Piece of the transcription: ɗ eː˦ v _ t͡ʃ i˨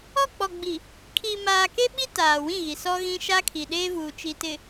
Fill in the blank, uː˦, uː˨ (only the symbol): uː˨